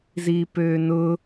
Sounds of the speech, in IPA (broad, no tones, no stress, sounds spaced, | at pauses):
z iː p øː n ʊ